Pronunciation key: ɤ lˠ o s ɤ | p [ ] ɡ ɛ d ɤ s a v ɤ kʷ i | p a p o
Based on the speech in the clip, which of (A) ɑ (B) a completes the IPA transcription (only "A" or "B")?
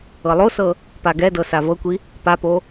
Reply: B